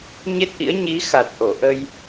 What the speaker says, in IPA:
ɲ e˦˥ t̚ ʔ ḭ˧˥ ə̯ ɲ i˨˦ x a˨˩ t̚ ʔ o˧˩ ʔ ə˧ j

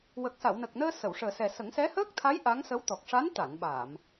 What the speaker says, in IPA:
w ə˨˩ k̚ s a˨˩˨ w n ə˨˩ k̚ n əː˧ s ə˨˩˨ w ʂ əː˨˩ s ɛ˨˩ s ə˨˩˦ ŋ s ɛ˧˥ h əː˦˥ k̚ t̪ʰ a˧˥ j ʔ a˧˥ ŋ s ə˧˥ w t̪ ɔ˨˩ k̚ ʂ a˧˥ n t̪ a˨˩˨ n ɓ a˨˩˨ m

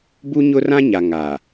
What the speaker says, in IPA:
b u˦ ɲ ʊ˦ r ã˦ ɲ a˨ ŋ a˨

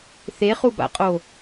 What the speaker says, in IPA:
θ e χ u b a̰ qʼ o

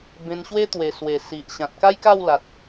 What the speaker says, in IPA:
b ẽ˧ n ɕ w e˦ t̪ w e˨˩ s w e˨˩ s i˨ ʔ ɕ ã˨ t̚ k a˦ j k a˥˧ w l a˨ t̚

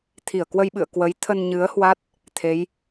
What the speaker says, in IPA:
t̪ʰ i˧˩ ə̯ k w ə˧ j ɓ ɨ̰˧˨ ə̯ k w ə˨˦ j t̪ʰ ə˧ n ɲ ɨ˨˦ ə̯ h w a˦˥ t̚ | t̪ʰ e˨˦ j

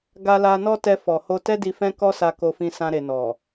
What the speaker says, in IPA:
ɡ a˧ l a˧ n ɔ˦ t ɛ˧ f ɔ˨ h o˧ t ɛ˦ d i˧ f ɛ̃˦ k ɔ˦ s a˧ k o˧ f ĩ˧ s ã˧ ɾ e˨ n ɔ˨

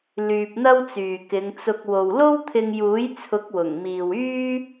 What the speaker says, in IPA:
l yː˧ p̚ n̪ ɐ˥ w t͡s yː˨ k ɪ˨˧ ŋ t͡s ʊ˧ k̚ w o˨ w l o˥ w t̪ʰ ɪ˧ ŋ j uː˨˥ j t͡sʰ ʊ˨˥ k̚ w ʊ˨˩ ŋ m iː˨ w yː˥

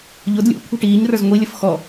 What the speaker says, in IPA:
ʎ ʊ d lʲ ṵ kʷʰ i̤ ʈ iː ɲ r ə˞ z ŋʷ i lʲ ə f x ɔ

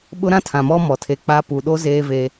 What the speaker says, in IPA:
ɓ ʊ˦ ɾ ã˦ tʰ ã˨ m ɔ˦ m ɔ˨ tʰ e˨ k͡p a˦ p u˨ ɗ o˦ z eː˦ v e˦

